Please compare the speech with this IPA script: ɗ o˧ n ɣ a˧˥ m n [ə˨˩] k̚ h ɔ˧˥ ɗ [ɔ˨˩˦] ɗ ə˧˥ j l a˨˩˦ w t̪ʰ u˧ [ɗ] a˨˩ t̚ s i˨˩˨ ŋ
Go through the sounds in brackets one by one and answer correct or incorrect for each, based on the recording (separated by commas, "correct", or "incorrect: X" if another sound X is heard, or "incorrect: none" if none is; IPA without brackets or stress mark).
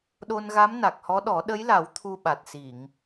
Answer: incorrect: a˨˩, correct, incorrect: ɓ